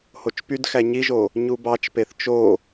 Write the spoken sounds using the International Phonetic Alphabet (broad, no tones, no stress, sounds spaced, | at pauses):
h o t͡ʃ p y d x æ ɲ i ʒ o | ɲ u b ɑ t͡ʃ p e θ t͡ʃ o